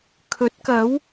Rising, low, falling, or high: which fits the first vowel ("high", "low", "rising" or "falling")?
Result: rising